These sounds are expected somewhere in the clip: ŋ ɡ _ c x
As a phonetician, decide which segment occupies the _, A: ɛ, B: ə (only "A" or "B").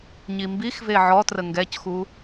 A